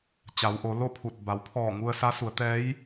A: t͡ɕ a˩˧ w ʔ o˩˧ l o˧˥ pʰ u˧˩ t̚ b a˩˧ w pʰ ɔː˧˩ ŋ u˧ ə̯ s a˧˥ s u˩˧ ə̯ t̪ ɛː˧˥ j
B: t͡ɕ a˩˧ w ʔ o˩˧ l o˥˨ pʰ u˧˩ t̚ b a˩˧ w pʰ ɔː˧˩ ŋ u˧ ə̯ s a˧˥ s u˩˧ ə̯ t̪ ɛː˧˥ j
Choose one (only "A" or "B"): B